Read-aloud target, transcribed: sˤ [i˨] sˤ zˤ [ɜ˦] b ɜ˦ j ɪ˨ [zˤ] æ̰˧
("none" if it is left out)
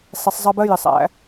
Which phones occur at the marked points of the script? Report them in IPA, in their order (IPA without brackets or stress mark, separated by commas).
i˨, ɜ˦, sˤ